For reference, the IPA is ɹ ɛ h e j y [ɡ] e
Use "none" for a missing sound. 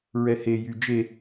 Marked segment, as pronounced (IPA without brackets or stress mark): d͡ʒ